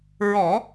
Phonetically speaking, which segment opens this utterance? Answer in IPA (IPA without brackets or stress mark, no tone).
ɹ